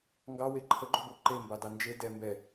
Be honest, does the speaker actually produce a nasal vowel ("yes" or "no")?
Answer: no